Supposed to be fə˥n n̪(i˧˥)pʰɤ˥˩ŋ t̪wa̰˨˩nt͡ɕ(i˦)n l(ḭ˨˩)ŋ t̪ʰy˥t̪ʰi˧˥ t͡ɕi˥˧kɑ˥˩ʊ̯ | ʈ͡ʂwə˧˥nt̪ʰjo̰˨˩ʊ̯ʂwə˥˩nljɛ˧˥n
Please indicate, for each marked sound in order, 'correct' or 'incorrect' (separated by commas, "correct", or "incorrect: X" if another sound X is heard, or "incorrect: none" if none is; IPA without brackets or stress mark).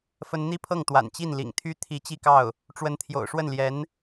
incorrect: i˥, incorrect: i˥˩, correct